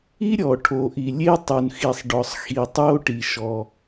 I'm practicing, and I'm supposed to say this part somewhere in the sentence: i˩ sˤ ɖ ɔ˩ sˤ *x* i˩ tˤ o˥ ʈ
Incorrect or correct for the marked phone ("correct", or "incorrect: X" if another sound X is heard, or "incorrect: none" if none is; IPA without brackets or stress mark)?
correct